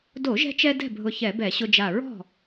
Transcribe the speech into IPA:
d o˧˩˧ ʒ ɛ̤˧ t͡ʃ ɛ˧ d ɛ̤˥˨ bʱ ʊ˧˩ ç ɛ˧˩˧ b ɛ˧˩˧ ɕ ʊ˧ d͡ʒ a˧˩ ɹ ɔ̤˥˨

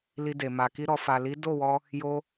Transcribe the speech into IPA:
l i˧ d e˨ m a˨ k i˧ ɾ ɔ˨ f a˨ l i˨˦ d o˦˨ w ɔ˧ | j o˧

